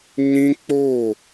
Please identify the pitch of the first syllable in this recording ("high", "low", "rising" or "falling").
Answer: high